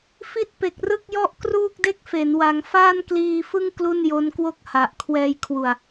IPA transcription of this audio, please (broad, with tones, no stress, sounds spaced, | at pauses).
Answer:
f i˥˩ t̚ p e˨˩ k̚ r ɯ˥˩ k̚ j ɔ˥˩ ʔ k r uː˥˩ k̚ d e˥˩ k̚ f e˩˦ n w a˩˦ ŋ f aː˥˩ n k l iː˧ f ɯ˥˩ ŋ k l u˥˩ n j o˦˥ n k w o˥˩ k̚ h a˨˩ ʔ kʰ w ɛː˧ j kʰ w u˨˩ a̯